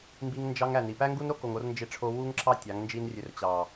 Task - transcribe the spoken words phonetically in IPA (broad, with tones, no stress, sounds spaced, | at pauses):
m b i˧ ŋ n d͡ʒ ɑ˧ ŋ æ˨ n i˨ p æ˦ ŋ ɡ u˦ n ɾ o˦ k o˨ ŋ o˧ r n d͡ʒ e˧ ʈ͡ʂʰ o˧ w u˦ ŋ ǁ ɑ˦ tʲ ɑ˨˦ ŋ n d͡ʒ i˦ n rʲ ø˧ r t͡ɕ ɑ˨